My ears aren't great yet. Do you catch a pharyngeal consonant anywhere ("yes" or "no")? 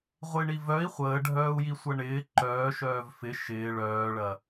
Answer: no